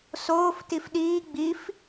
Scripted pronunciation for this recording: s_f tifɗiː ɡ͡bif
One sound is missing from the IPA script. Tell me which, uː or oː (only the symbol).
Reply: oː